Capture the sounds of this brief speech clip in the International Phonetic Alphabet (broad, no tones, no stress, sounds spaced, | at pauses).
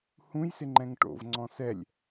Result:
h ũ j s ɪ ŋ͡ǃ ɛ̃ ŋ ʈ o̰ v ŋ͡ǀ ɔ̃ s ɛ lʲ